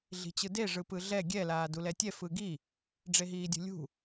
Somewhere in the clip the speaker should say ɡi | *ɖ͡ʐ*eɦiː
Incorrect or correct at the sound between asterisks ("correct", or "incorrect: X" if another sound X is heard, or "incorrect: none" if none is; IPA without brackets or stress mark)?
correct